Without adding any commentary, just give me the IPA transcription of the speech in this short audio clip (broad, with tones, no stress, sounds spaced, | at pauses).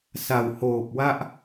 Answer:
s a˨˩ w h oː˨˩ p̚ w a˥˩ ʔ